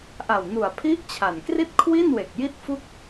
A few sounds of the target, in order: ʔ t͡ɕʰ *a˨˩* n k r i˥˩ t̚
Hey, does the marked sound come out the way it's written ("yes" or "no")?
yes